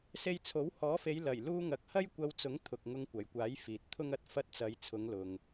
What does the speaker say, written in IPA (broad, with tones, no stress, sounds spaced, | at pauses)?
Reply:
s e˧ j t͡sʰ o˨˥ w h ɔː˨˥ f e˨˧ j l ɐ˨˩ j l uː˧ ŋ ɐ˨ k̚ h ɐ˥ j kʷ ɐ˧ w t͡s ʊ˨˥ ŋ t̪ʰ ʊ˨ k̚ ŋ ʊ˧ ŋ kʷ ɐ˨˩ j kʷ aː˨˥ j f iː˨ t̚ t̪ʰ ʊ˥ ŋ ɐ˨ t̚ f ɐ˥ t̚ t͡s ɐ˨˧ j t͡sʰ ʊ˨˧ ŋ l ʊ˨ ŋ